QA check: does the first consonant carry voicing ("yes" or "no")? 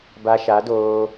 yes